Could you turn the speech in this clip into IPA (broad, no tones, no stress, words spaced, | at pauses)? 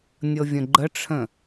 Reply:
nʲɤvʲə̃ɡ͡ǃəʈ͡ʂʰə̃